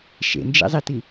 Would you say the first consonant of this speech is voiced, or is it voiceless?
voiceless